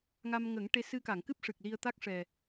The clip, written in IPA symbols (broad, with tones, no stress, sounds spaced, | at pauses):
ŋ a˧ m ŋ ə˨˩˦ ŋ ʈ e˧ s ɨ˧ k a˨˩˨ ŋ k ɨ˦˥ p̚ ʂ ɨ˨˩ k̚ l i˧ ə̯ t̪ a˦˥ k̚ ʂ ɛ˨˩